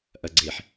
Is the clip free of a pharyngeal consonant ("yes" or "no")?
no